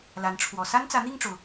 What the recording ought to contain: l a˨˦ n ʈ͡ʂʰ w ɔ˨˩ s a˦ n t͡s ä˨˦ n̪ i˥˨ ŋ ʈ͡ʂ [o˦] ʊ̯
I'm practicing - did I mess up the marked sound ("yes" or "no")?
yes